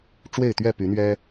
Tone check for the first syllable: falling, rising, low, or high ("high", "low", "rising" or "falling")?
falling